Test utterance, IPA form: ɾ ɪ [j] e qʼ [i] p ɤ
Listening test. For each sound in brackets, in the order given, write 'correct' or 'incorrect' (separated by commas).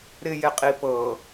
correct, correct